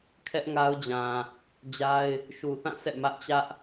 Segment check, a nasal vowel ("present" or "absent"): present